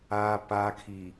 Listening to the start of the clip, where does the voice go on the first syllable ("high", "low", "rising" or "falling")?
low